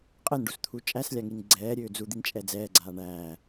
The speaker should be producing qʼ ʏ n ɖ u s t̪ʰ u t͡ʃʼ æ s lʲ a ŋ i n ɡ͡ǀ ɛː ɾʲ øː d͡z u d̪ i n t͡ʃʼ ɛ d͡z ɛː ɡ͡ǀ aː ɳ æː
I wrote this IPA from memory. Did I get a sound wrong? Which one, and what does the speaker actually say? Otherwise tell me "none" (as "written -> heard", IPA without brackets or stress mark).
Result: ʏ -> ɛ